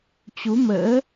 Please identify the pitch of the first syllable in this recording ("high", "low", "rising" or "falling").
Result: rising